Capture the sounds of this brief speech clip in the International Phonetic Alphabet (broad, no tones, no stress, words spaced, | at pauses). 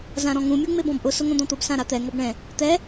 zãɾɔ̃ŋũ mʲuŋ͡mebɔ̃bʔʊ sʊŋõd̪ɔ̃t̪ʊb sãɾat̪ɛ ŋɔbɳɛ̃ | t̪ɛ